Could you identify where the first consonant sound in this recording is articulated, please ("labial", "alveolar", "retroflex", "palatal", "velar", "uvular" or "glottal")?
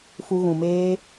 labial